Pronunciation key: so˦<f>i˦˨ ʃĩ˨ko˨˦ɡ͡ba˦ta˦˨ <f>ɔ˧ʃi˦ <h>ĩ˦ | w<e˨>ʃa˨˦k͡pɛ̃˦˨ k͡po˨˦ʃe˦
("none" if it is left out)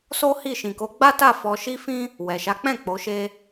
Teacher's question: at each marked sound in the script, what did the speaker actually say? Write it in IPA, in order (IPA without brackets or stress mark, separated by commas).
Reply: h, f, f, ɛ˨